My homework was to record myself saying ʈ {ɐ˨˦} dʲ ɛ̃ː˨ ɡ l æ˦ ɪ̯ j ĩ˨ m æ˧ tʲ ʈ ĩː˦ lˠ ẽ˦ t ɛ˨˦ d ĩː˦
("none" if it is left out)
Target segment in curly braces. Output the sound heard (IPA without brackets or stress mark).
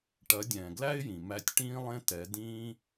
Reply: ɐ˨˦